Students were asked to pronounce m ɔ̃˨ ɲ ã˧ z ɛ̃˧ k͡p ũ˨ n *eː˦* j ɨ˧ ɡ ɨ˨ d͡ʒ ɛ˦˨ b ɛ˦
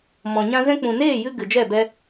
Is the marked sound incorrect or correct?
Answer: incorrect